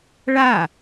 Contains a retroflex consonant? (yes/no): yes